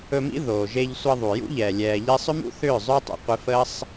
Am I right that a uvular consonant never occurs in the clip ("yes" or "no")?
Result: no